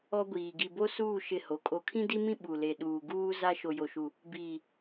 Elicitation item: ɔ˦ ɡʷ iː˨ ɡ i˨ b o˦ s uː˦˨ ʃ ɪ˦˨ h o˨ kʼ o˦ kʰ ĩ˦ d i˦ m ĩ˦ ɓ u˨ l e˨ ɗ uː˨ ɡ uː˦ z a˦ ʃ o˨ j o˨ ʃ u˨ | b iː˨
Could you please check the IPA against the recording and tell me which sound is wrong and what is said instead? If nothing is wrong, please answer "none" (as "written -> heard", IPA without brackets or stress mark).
none